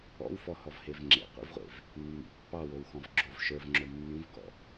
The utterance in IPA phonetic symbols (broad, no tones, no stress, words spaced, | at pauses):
ɔ̰wfɔhɔvhev ŋ͡ǁḛqʷḭvʁʷḛv | mːḭ pːɑwowxɔ̃v ɡ͡ǁov ʃə˞vŋ͡ǁo mːĩvɡɔ̰